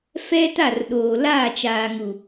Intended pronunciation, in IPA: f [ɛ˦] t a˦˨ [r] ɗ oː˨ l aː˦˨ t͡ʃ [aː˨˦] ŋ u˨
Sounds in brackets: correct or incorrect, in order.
correct, correct, incorrect

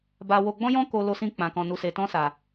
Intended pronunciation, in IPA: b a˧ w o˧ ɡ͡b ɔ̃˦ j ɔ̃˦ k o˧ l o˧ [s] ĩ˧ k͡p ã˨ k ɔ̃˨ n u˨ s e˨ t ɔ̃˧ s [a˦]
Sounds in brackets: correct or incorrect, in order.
correct, incorrect

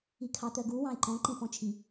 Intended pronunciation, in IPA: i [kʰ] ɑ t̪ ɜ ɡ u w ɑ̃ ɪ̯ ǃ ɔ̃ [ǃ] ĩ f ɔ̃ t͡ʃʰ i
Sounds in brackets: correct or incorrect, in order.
correct, correct

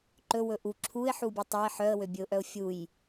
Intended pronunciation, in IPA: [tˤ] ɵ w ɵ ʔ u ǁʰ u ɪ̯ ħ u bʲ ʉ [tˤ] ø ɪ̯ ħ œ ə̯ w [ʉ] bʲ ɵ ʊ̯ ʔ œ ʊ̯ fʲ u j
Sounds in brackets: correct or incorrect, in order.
incorrect, correct, incorrect

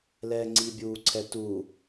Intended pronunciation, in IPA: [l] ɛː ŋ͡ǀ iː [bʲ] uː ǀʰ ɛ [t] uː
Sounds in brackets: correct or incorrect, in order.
correct, correct, correct

